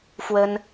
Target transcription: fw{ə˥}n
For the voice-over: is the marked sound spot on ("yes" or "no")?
yes